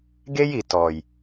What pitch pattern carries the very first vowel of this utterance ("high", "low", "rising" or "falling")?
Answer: high